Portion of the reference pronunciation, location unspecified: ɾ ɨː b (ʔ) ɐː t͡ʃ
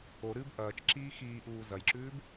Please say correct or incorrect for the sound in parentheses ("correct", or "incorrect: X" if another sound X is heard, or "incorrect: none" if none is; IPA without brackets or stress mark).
correct